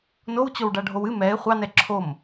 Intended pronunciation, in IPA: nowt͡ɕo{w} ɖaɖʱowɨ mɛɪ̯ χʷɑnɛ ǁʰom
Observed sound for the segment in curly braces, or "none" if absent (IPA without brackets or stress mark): w